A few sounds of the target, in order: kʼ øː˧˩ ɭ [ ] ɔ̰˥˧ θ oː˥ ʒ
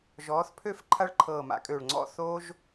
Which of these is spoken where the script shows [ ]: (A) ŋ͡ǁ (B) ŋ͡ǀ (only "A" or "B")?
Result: B